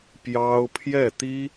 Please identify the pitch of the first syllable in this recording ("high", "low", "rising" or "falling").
high